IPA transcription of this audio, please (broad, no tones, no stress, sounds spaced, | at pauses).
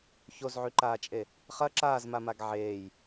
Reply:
ç o z ʕ y ǃ aː t͡ʃʼ e | χ ɐ ǁ aː z m a m a ɡ ʕ eː j